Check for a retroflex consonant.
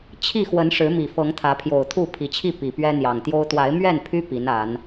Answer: present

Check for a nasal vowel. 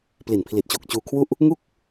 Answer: absent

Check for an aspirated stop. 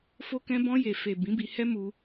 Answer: absent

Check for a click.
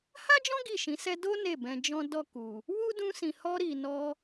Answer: absent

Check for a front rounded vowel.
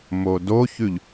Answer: absent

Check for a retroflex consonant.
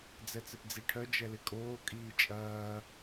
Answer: present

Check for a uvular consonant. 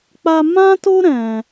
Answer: absent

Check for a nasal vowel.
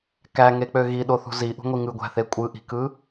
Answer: absent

